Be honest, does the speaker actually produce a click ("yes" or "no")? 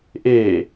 no